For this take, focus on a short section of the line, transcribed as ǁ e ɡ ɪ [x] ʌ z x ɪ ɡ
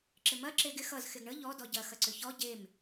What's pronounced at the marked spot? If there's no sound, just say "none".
x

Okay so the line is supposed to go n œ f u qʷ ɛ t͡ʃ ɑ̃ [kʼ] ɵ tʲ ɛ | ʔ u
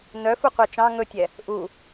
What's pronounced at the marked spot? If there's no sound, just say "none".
ŋ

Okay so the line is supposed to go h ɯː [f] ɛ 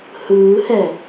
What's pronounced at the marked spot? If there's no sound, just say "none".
h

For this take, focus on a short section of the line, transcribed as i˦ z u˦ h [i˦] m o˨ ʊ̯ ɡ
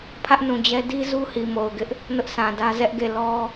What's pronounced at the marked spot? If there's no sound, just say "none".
i˨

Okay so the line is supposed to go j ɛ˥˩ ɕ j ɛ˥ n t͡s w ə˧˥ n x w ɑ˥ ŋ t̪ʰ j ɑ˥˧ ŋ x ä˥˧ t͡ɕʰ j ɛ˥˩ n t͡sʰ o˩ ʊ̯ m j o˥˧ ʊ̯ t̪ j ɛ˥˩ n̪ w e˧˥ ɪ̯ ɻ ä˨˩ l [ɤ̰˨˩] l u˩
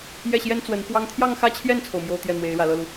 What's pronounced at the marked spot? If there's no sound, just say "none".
ɤ˥˩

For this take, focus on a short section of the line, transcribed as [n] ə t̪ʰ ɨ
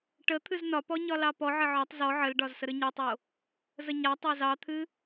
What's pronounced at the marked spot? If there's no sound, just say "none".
ʈ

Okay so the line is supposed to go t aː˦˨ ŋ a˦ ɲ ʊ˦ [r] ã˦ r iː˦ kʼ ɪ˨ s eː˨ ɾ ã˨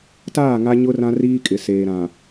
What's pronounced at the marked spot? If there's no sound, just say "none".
r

